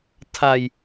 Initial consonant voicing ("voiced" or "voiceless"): voiceless